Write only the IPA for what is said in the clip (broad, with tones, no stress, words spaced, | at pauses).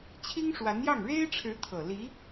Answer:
t͡ɕʰi˥ŋʂwa˧˥njɑ˥˩ŋ ɻe˥ɪ̯ʈ͡ʂʰɻ̩˧˥ t̪ʰɤ˨˩ li˧˥